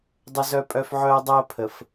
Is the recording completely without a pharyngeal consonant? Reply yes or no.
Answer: no